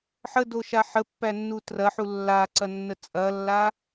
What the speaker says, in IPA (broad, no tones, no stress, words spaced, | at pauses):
ħədoʃa ħəpːænːu trɐħu lːaǀɐnːə t͡sʼɐlːa